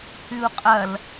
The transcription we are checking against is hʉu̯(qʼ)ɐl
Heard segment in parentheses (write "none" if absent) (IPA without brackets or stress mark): qʼ